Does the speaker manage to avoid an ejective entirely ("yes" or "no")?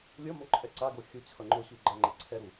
no